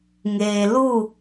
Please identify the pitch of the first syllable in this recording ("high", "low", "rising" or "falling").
low